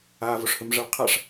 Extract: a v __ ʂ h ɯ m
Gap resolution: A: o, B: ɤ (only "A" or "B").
A